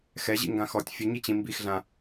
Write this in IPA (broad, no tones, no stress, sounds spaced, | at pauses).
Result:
x ɛ ʑ ḭ ŋ ɡ ã x ɔ tʲ fʲ ə ɲ i t͡ɕ ĩ m b i x ɮ ã